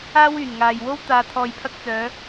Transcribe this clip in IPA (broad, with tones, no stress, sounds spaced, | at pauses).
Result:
aː˥ w yː˨˩ n ŋ aː˨ j w o˥ w t̪ aː˨ t̪ʰ ɔː˨ j pʰ ɐ˧ k̚ t͡s œː˨˧